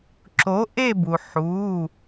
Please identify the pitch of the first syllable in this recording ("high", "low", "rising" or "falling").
rising